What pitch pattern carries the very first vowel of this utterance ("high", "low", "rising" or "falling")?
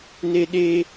high